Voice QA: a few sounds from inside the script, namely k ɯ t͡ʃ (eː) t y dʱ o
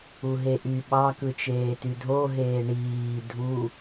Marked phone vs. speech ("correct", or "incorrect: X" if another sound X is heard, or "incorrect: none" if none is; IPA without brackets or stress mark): correct